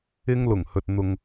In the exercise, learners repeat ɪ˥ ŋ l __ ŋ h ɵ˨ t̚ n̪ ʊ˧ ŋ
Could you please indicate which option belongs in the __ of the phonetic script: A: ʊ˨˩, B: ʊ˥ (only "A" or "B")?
A